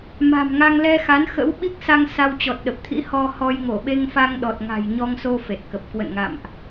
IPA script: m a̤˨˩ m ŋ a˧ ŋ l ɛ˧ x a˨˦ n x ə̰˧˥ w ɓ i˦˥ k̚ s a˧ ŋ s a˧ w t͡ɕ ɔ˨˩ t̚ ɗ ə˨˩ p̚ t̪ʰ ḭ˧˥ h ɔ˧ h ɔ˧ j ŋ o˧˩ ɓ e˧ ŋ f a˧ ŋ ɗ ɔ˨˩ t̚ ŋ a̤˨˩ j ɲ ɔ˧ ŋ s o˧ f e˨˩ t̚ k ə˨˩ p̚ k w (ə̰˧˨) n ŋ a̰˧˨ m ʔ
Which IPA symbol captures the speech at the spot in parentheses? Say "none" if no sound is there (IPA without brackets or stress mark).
ə̰˧˨